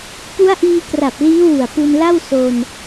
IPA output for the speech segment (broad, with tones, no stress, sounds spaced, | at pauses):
p u˦˥ a̯ ʔ iː˧ k r a˨˩ p̚ l iː˦˥ w u˨˩ a̯ p u˧ n l a˥˩ w s o˧ n